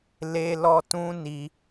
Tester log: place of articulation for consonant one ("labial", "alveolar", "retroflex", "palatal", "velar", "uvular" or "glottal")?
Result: alveolar